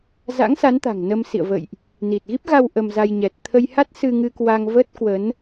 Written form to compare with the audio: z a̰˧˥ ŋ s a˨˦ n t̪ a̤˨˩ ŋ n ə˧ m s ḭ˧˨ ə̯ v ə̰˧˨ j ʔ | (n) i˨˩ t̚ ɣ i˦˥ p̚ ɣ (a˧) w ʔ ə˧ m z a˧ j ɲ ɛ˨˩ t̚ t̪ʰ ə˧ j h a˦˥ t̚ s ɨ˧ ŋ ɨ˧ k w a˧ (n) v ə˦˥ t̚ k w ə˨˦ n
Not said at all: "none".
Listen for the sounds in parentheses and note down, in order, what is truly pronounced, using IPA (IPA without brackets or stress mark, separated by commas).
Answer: n, a˧, ŋ